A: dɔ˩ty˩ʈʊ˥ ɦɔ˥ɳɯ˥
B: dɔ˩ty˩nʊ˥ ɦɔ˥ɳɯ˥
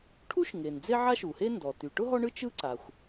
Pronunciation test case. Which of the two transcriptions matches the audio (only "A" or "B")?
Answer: A